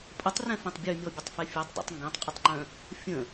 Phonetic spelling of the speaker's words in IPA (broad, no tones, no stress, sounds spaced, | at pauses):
pʼ ə tˤ r ɛ̃ f ɛ̃ tˤ bʲ ø mʲ ɔ bʲ ə tˤ f ɛ fʲ ɛ tˤ dˤ a̰ tˤ ŋ ɡ ɛ̃ tˤ qʼ ə tˤ ŋ͡ǃ œ̃ | fʲ ə̃